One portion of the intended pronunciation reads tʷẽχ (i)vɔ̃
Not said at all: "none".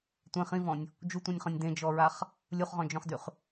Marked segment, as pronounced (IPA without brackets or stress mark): ĩ